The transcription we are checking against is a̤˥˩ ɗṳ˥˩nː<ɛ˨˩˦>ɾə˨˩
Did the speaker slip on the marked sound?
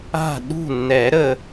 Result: no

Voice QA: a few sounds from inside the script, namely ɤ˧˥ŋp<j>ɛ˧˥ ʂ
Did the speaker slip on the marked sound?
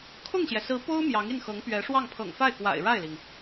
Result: yes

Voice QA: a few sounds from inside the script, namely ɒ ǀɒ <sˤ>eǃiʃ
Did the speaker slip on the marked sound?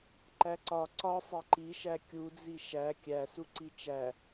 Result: no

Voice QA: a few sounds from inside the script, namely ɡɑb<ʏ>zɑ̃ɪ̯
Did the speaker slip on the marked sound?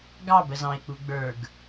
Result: yes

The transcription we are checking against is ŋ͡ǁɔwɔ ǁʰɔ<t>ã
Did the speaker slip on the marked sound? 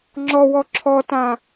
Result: no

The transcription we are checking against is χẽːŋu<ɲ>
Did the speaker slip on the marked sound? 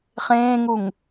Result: yes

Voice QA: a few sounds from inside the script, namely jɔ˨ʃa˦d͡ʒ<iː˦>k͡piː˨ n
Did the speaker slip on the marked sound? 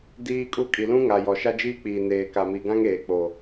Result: no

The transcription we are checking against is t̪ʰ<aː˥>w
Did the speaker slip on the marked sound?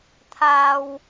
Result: no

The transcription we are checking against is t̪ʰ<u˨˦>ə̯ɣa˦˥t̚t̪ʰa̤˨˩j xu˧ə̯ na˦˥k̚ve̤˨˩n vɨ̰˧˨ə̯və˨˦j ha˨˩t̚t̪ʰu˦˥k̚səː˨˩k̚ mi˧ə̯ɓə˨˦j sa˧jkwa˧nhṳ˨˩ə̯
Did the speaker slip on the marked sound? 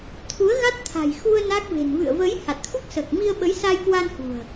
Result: no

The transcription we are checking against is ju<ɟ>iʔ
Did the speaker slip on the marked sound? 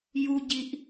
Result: no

